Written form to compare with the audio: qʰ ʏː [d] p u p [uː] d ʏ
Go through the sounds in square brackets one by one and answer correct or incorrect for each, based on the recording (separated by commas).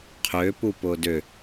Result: incorrect, incorrect